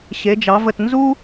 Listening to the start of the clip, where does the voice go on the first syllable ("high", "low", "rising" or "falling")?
rising